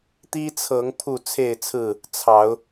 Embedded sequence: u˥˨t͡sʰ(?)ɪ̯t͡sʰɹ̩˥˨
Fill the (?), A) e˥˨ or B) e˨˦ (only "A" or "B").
A